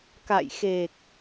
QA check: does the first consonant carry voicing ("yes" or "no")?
no